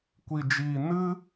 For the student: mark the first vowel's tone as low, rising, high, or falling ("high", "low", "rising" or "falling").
low